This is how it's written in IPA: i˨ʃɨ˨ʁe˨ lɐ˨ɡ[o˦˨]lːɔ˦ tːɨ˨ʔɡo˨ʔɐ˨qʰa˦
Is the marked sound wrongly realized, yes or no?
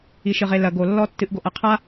yes